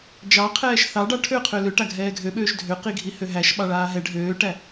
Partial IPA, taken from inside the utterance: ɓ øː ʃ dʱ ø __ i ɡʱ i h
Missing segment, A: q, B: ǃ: A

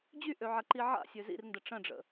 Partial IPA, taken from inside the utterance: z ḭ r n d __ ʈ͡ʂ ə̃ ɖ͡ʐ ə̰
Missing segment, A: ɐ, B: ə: B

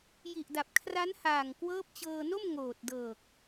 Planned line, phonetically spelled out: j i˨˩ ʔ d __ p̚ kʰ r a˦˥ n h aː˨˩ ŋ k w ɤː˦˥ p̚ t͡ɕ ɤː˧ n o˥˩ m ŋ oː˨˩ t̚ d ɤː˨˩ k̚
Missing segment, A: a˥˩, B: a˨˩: B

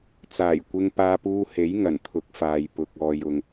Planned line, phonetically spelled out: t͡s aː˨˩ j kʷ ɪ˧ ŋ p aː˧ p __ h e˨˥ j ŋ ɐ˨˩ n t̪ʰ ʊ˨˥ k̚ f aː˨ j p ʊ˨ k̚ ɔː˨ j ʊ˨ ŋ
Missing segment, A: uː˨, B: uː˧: B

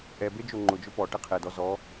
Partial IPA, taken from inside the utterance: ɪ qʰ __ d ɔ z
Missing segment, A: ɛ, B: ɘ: A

